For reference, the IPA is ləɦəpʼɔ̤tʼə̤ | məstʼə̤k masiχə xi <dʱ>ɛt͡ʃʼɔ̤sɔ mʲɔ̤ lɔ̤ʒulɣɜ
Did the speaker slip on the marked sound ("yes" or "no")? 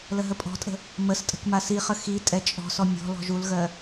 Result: yes